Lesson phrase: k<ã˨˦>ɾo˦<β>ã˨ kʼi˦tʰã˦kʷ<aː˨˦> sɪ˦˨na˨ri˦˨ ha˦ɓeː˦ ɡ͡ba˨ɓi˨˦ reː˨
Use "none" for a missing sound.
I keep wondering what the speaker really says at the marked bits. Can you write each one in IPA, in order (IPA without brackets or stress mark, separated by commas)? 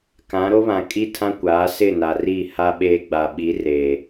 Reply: ã˨˦, β, aː˨˦